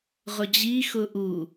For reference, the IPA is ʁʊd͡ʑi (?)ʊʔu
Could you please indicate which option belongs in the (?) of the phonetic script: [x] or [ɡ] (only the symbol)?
x